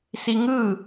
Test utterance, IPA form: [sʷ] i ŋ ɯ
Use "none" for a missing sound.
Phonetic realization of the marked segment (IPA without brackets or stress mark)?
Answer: s